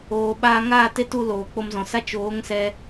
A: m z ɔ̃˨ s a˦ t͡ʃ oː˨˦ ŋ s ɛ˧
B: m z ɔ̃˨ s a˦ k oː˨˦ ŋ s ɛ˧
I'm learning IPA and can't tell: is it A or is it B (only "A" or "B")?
A